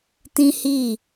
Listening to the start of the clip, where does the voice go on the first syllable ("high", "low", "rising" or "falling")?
high